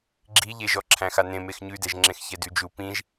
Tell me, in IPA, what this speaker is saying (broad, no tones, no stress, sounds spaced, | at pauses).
ɡ͡ǁ i ʎ e ʒ ɔ ǁʰ æ̃ x a n ẽ m e x ɲ ʉ d ɛ ʒ ŋ͡ǁ ẽ x ç ɛ d ʉ d͡ʒ u p ĩ ʒ